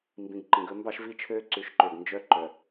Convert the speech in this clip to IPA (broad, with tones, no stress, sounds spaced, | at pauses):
m b ĩ˨ ɡ ǃ ĩ˨ ɡ ɵ˦ m b ɑ˦ ʃ v i˦ t͡ʃʰ øː˦ ǀ ʉ˨˦ ʃ ǃ ø˨ ɡ n d͡ʒ œ˦ ǃ œ˨